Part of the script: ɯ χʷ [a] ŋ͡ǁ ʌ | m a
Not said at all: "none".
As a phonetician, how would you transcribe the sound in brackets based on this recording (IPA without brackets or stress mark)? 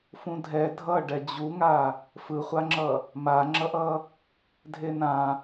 a